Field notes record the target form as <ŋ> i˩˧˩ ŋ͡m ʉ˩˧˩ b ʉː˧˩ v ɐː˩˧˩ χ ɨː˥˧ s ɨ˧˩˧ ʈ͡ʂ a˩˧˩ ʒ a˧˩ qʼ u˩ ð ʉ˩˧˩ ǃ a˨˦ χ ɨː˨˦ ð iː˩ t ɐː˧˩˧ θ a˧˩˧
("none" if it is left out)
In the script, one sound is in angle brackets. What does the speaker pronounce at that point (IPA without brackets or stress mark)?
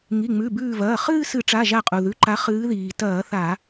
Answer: ŋ